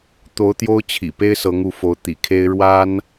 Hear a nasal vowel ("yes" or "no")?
no